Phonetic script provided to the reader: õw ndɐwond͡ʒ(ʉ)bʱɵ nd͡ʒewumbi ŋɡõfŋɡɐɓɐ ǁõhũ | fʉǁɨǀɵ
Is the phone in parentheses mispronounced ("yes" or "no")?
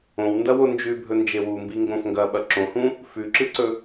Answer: no